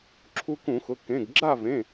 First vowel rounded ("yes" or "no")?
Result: yes